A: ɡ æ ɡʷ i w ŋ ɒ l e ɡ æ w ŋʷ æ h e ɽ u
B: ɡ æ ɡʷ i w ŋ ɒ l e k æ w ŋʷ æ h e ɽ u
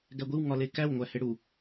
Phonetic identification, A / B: B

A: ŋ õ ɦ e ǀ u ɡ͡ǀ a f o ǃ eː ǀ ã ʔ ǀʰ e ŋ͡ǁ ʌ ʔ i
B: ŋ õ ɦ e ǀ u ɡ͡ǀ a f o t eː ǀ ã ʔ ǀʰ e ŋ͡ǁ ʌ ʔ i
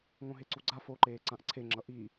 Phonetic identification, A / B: A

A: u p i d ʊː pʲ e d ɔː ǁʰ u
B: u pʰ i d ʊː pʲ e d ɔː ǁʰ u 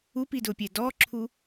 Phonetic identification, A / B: A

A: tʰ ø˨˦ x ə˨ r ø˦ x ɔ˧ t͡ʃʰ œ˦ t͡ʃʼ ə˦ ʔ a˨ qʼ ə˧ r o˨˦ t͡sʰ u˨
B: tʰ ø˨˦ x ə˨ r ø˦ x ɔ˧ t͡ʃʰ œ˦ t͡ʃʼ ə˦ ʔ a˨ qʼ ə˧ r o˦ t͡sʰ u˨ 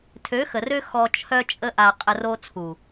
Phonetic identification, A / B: B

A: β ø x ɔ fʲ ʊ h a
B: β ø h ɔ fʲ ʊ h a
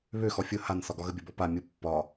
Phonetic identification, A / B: A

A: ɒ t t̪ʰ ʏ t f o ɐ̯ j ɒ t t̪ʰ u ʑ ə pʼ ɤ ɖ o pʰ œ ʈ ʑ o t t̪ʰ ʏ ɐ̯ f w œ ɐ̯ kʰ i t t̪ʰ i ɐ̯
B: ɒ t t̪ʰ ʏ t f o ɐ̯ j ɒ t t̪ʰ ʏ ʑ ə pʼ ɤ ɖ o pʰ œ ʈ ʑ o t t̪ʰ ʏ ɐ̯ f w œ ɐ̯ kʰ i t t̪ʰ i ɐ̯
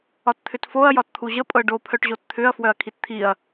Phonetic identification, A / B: A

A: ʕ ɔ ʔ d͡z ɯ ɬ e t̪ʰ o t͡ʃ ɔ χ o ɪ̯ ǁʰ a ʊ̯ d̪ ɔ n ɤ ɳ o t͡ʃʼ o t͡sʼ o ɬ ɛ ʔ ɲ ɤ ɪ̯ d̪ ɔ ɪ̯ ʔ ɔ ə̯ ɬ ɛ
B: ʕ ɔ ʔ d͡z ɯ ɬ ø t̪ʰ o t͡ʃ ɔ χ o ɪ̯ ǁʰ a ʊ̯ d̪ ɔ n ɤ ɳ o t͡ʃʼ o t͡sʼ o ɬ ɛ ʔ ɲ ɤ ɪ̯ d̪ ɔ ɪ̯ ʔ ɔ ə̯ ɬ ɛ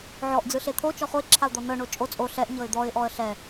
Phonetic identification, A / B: A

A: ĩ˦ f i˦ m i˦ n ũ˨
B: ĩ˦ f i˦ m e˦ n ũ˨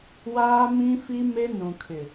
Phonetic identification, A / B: B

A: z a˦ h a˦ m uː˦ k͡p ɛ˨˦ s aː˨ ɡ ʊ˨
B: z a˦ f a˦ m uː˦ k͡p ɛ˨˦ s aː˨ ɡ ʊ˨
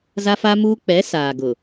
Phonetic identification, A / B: B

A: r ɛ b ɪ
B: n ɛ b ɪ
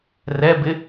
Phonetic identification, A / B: A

